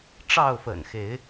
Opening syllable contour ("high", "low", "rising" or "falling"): falling